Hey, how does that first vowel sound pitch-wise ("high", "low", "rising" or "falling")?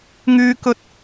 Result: high